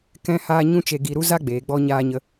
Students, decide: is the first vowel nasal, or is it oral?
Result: nasal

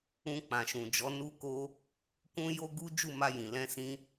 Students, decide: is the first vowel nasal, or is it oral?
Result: nasal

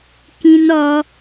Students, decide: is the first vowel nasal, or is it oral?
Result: nasal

